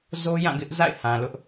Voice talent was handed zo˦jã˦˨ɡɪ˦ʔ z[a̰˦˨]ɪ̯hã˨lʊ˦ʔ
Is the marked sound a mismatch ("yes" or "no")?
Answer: no